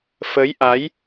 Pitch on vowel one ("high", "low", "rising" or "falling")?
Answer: rising